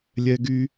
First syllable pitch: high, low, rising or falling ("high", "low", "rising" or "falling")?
high